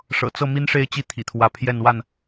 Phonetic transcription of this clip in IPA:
ʂ ɤ̰˨˩ t͡s ɤ˥˨ m i˦ n ʂ e˥˨ ɪ̯ t͡ɕ i˦ t̪ʰ ḭ˨˩ t̪ʰ w ä˨˦ pʰ j ɛ˥˨ n w a˥˨ n

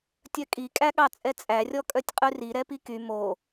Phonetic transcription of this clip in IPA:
tʲ œ kʼ i kʼ æ ɠ ɑ t͡sʼ ɛ t͡sʼ æ rʲ ɔ kʼ œ tʲ qʼ ʉ r i ɾ ɛ p i k y m o

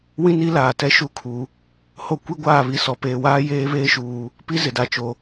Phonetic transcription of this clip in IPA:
w ĩ˦ n i˦ l aː˨ t ɛ˦ ʃ u˦˨ kʰ u˨ | h o˦ kʷ i˦ ɡʷ aː˦˨ β i˨ s ɔ˨ p eː˨ w aː˦ j eː˦ β eː˦ ʃ uː˨ | p i˦ z ɪ˨ d a˨ t͡ʃ o˨

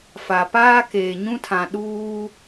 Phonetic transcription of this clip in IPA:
f a˨ p aː˦ k eː˨ ɲ ũ˦ tʰ ã˨ ɗ uː˦

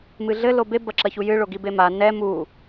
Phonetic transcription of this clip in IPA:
m ɨ ɮ ɘ l o b e b ɐ ǁ ɐ ç u j ɨ ɭ o ɡ i b e m a n ɛ m u

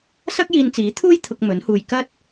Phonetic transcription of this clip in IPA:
s ɐ˥ k̚ j iː˧ n t͡s iː˨˥ t̪ʰ uː˥ j t̪ʰ ʊ˧ k̚ m ɵ˨˥ n h uː˧ j k ɐ˥ t̚

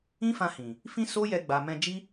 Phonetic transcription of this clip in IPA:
ĩ˦ f ã˧ h ĩ˨ | f ĩ˦ s o˦ j ɛ˧ ɡ͡b a˨ m ɛ̃˧ d͡ʒ i˦

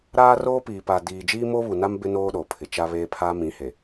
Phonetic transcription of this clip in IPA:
ɾ aː˦ r oː˦ p iː˨ p a˨ d iː˨ d͡ʒ iː˦ m o˦ β u˨ n a˦ m b ɪ˦ n oː˦ ɗ o˨ pʰ ɪ˨ t͡ʃ a˦ β eː˦ pʰ aː˦ m ĩ˨˦ h e˨

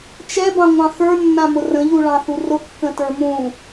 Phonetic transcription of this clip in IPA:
t͡ʃ ɛ b ɑ̃ ŋʷ ɑ̃ x ə˞ nː ã m ʊ r ə̃ ʎ u ɭ ɑ̃ θ u r ʊ kː ə̃ t ə˞ m ũ

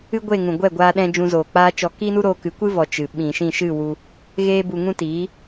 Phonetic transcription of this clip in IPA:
ɨ˦ ɡʷ e˦˨ ŋ ũ˨ ɡʷ ɛ˦˨ ɡʷ aː˦ ɗ ɛ̃˦ d͡ʒ ũ˧ z oː˨ k͡p aː˦ t͡ʃ ɔ˧ k iː˦ n u˦ ɾ oː˧ k ɨ˨˦ kʷ ɨ˦ v ɔ˨ t͡ʃ ɨ˨ ɓ ĩ˨ ʃ ĩ˦˨ ʃ ɨ˦˨ w u˧ | ɣ eː˦ b u˧ ŋ ũ˦ t iː˨˦

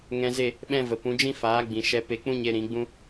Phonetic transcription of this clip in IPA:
ŋ ɛ̃˧ z e˦˨ | ɓ ɛ̃˦ v ə˨ p ũ˨˦ d͡ʒ ĩ˦ f aː˨˦ ɡ͡b ĩ˨ ʃ ɛ˧ p e˧ k͡p ũ˦ ɲ e˧ ɾ ĩ˨˦ ɡ͡b ũ˦

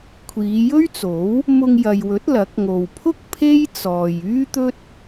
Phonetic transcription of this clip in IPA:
kʷʰ iː˨˧ j ɵ˥ ɥ t͡s o˨˥ w | m ʊ˧ ŋ j ɐ˨ j w ɵ˨˥ t̚ l ɐ˨˥ k̚ ŋ o˨ w pʰ ʊ˥ k̚ pʰ e˥ j t͡s ɔː˨ j yː˥ t̪ ɵ˥ t̚

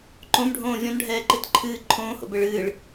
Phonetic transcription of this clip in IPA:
ǃ õ m ɖʱ õː vʲ ɔ̃ n ɖʱ ɛː ǃ ɨ t ǃʰ ɨː ǃʰ õː h o̰ b ɘ ɭ ɨː ɭ

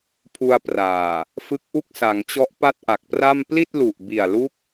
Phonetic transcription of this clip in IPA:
pʰ u˧ a̯ p r aː˨˩ | f ɯ˦˥ k̚ ʔ u˥˩ k̚ s a˩˦ ŋ t͡ɕ ɔ˦˥ ʔ p a˥˩ t̚ ʔ a˨˩ k̚ p r a˥˩ m p l i˥˩ t̚ l u˨˩ ʔ b i˨˩ a̯ l u˦˥ k̚

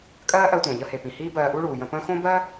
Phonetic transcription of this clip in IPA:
kʼ ɜː˥ ʔ ɜ˧ tʷ ə̃ː˩ ʎ ə˧ h e˩ p ĩ˩ h iː˥ b ɜː˧ ʔ u˥ ɭ uː˩ j ə̃˧ p ə̃ː˥ x õ˥ b ɜ˥

